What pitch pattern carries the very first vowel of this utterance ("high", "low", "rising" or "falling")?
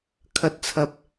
rising